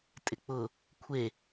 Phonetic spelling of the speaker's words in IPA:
tʼ ɪ k͡p ʊ | kʷʰ e

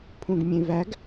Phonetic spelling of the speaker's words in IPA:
pʰ ũ ɡ mʲ ẽ v æ ɡ

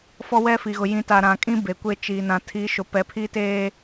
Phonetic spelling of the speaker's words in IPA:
f ɔ˦ w ɛ˦ f i˨ ɣ ʊ˨ j ĩ˨˦ t a˨ ɾ ã˨ kʼ ĩ˦ b e˨ kʷ e˦ t͡ʃ iː˨ n ã˨ tʰ i˨˦ ʃ ʊ˨ p ɛ˨ pʰ i˦ t eː˦

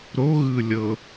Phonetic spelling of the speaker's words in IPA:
ɾ o ɣ ɯ lʲ ɤ

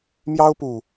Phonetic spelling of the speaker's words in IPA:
m j ɑ˦ ʊ̯ p u˨˩

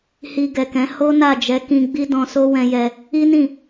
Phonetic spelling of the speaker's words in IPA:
h i˧ ɡ ɛ˨ k ɛ̃˨˦ h o˦ n a˦˨ d͡ʒ ɛ˨˦ k ĩ˧ ɡ͡b i˦ d ɔ̃˧ s o˦ w ɛ̃˧ j ɛ˧ | i˦ n ĩ˦˨

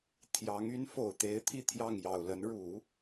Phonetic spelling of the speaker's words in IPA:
t̪ʰ j ɑ˧˥ ŋ y˧˥ n f o˨˩ ʊ̯ t̪ e˧˥ ɪ̯ t̪ʰ i˥˧ t̪ʰ j ɑ˥˩ ŋ j ɑ˨˩ ʊ̯ l ə˧˥ n ɻ u˨˩˦

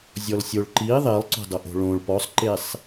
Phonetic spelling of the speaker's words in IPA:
zʲ ɔ l sʲ o ɭ ǃ i ðˤ e lˠ ǀ o̤ dˤ ɤ ʔ o̤ ɭ õ ɭ p ɔ sˤ ǃ e sˤ

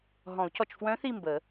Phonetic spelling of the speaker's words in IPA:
ɦ ɔ̃˨˩˦ u̯ c ɔ˨ t͡ʃ f w œ̃˧˥ θ i˦˨ m b ə˨˩˦

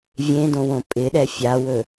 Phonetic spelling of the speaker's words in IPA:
vʲ ẽ d õ w õ pʼ ɪ ɗ ɛ fʲ a w ɵ

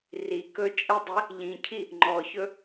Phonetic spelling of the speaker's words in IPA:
r i k ɵ t͡ʃʼ ə dˤ i | ʎ ĩ cʰ i | ŋ͡ǃ ɔ ç ɵ

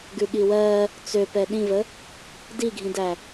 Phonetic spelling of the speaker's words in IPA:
ɡ ʉ ɠ i w ɜ | t͡s ø p ɛ ɗ ĩ v ə | d i ɡʱ ĩ d æ

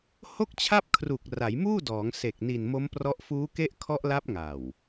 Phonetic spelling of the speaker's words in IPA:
h o˥˩ k̚ t͡ɕʰ a˥˩ p̚ kʰ r u˨˩ k̚ r a˩˦ j m uː˥˩ d ɔː˩˦ ŋ s e˨˩ k̚ n i˨˩ n m o˦˥ m p r ɔ˦˥ ʔ f uː˦˥ k e˦˥ ʔ kʰ ɔ˦˥ ʔ l a˦˥ p̚ ŋ a˨˩ w

